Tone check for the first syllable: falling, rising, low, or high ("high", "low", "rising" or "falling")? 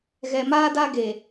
low